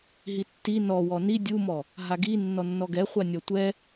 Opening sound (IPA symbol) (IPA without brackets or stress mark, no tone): ɦ